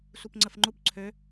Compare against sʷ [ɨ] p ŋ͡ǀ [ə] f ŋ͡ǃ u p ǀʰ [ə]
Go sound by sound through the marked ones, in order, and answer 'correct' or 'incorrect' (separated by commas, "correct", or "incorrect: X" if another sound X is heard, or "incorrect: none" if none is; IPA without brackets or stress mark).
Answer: incorrect: i, correct, incorrect: ø